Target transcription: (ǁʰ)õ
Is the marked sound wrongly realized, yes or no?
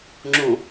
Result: yes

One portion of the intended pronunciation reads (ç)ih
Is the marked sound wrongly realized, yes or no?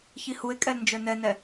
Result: no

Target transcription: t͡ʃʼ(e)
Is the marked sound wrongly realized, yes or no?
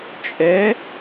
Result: yes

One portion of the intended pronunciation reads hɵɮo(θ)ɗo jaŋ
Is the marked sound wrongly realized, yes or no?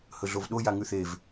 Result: yes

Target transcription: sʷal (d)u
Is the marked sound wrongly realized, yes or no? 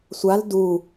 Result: no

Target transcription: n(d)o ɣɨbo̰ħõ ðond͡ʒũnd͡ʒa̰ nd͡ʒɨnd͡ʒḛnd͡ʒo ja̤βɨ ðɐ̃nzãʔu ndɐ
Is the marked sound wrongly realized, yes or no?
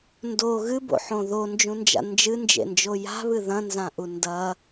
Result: no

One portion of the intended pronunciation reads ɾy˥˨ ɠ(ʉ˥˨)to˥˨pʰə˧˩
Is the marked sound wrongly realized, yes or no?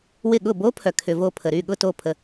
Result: yes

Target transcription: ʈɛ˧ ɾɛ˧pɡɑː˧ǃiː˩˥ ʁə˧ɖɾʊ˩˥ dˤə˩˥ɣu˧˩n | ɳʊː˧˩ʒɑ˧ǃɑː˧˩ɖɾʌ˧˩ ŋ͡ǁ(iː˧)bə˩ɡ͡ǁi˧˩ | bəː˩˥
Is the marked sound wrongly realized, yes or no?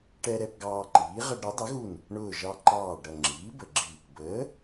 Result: yes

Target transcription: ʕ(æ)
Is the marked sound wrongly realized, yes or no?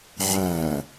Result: no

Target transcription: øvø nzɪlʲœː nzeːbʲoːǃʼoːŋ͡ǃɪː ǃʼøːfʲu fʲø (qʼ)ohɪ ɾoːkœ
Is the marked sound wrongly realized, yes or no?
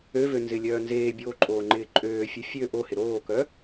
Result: yes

